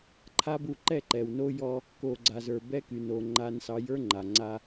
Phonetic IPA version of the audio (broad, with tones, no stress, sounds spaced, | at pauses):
ǃʰ a˦ b u˦˨ ǃ ɛ˦˨ ǃ ɛ˨ w n o˦ j ɔ˦ | k o˨ ɡ͡ǀ a˨ z ə˞˨ b ɛ˦ k y˨ n o˨ ŋ͡ǃ a˦ n s ɑ˦ j ə˞˦ ŋ͡ǃ a˨ ŋ͡ǀ a˦